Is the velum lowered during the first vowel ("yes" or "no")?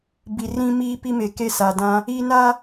no